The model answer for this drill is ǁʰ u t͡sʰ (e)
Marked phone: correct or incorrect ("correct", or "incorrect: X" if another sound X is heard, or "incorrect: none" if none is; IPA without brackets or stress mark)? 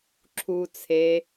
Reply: correct